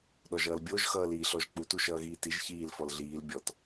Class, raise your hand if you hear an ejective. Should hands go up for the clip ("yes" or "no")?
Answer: no